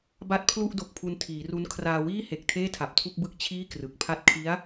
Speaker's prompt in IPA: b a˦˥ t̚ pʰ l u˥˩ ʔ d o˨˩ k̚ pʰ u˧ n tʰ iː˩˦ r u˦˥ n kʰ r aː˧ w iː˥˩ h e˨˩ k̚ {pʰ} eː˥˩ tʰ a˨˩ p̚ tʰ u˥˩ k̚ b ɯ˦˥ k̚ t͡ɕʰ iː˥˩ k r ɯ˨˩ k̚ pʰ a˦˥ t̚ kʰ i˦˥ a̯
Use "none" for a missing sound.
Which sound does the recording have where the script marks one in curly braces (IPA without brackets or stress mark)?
tʰ